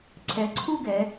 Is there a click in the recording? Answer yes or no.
yes